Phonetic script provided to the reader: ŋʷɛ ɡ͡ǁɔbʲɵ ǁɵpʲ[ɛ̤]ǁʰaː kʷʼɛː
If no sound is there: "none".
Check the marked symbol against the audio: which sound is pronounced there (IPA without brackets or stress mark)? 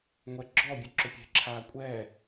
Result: ɛ̤